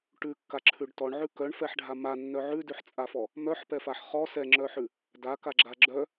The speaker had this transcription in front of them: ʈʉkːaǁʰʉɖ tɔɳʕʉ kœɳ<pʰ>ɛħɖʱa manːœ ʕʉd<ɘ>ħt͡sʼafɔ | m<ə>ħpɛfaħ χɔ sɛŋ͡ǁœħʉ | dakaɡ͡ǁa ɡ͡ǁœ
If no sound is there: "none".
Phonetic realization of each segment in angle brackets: f, ʉ, œ

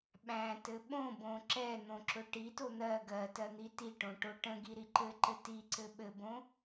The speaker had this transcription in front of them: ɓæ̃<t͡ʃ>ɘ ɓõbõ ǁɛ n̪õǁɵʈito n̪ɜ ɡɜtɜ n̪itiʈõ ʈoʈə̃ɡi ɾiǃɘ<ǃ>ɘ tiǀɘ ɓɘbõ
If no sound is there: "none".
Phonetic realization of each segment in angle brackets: t, ǃ

